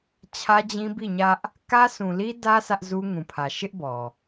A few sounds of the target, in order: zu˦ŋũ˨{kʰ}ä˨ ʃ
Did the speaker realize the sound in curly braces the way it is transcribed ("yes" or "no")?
no